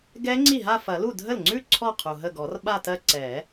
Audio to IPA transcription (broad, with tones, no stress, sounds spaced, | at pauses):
ɡ ɛ˦˥ ŋ͡ǀ i˥˩ ɦ a˥˧ f ɐ˨˩˦ l u˥˩ dʱ ə˥˩ l ŋ͡ǀ ʉ˥˧ ǀʰ ɔ˥˩ qʰ u˩ ɦ ə˥˩ ɡ ɔ˨˩˦ r ɓ a˥˧ t ɜ˥˧ ǀ ɛ˨˩˦